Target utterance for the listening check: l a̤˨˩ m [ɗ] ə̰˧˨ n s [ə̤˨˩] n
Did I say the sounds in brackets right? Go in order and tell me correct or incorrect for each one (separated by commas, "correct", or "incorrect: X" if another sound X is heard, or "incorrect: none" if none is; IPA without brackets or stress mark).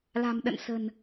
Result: correct, correct